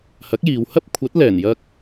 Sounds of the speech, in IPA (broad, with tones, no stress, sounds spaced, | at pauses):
h ɐ˨˥ k̚ j iː˨ w h ɐ˥ p̚ kʷʰ ɐ˨˥ t̚ l ɛː˨˩ n j ɐ˧ k̚